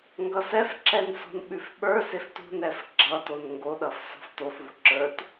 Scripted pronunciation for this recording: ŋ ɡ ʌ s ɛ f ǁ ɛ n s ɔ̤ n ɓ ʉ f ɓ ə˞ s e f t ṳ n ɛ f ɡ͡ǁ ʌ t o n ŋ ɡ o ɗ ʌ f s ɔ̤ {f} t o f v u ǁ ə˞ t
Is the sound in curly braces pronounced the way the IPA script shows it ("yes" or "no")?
yes